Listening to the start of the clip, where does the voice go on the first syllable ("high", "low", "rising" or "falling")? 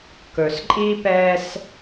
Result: low